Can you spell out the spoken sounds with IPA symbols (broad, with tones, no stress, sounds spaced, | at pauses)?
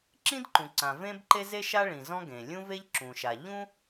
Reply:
ǁ ĩ˥ d ǃ ũ˩ ǀ ã˩ v ẽ˥ b ǃ e˥ z e˥ ʃ a˥ ɭ ĩ˩ z ɔ̃˥ ɡ ẽ˩ lʲ ũ˥ v e˥ ʎ ǁ ũ˩ ʃ a˩ ʎ ũ˥